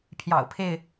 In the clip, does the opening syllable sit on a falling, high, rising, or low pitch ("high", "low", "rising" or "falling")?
low